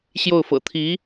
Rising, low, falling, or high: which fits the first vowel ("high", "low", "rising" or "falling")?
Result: falling